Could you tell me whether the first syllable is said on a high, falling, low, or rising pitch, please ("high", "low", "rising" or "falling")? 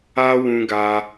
high